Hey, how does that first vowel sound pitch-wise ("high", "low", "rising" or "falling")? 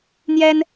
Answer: high